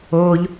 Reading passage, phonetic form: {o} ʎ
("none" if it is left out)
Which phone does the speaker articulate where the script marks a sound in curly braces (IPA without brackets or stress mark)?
oː